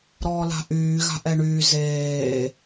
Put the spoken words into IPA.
ɾɔːla̤ʔyːɣa̤ ʔɛɳyː zeː

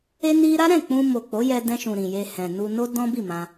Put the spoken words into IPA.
e˦ni˦ ɾa˦ɾɛ̃˦˨k͡pũ˧ mo˨ k͡po˨˦jɛ˧dɛ̃˧ʃũ˨ ɾĩ˨je˧hɛ̃˨ nu˧no˦ dɔ̃˦bi˦˨ mã˧

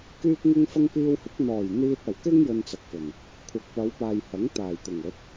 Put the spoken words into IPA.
kyː˥k̚ŋɪ˥ŋfɐ˥ŋ piː˧whɪ˨˥k̚n̪ɔː˨˩j n̪iː˧t̚ɐ˨˩wkɪ˥ŋ jɵ˧nt͡sɐ˨k̚fɵ˨˩n | kʷʰɐ˨k̚pɐ˨˧wpaː˨jhɐ˨˥ŋ t̪aː˨˩jt̪ʊ˨˩ŋ ɵ˨˥t̚

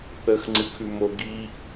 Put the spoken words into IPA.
θəːxŋ͡ǀɨkʰʉmo ɡiːʔ

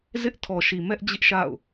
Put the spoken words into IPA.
zɪ˦ʔtʰɔ˨ʃi˨mɛ˦ʔ d͡ʑɪ˦ʔʃa̰˦˨ʊ̯

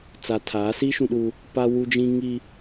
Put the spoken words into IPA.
t͡sa˨tʰaː˨˦si˦ ʃũ˦ɗuː˦ | pa˦wu˦d͡ʒĩ˦ ŋi˦

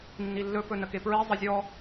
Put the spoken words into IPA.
nːilːɵ pɵnəkepɹi zˤəzʲɔ

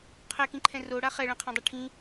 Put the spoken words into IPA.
qʰɛkĩǃʰɛ̃ roɽa χɛɭɛ̃qʰãdˤi ʈʰĩ

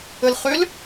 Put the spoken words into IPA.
əlχøl

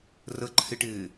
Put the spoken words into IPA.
rəǃʰɪʈɪː

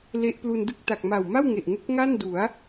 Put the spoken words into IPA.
le˦˥ʔplu˧n dɯ˥˩k̚ ta˨˩k̚ ma˨˩wma˥˩wŋe˨˩ʔ ŋu˦˥k̚ŋa˥˩n du˩˦a̯

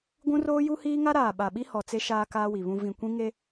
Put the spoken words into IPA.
ɡʷũ˦roː˦ju˦ hiː˦ŋa˦ɾaː˨ ɓa˨ɓi˦ hɔ˨t͡se˦ ʃaː˦kaː˦wi˨βũ˦ vĩ˨kʷĩ˦ ŋe˦

